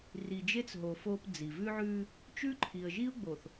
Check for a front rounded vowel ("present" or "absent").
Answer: absent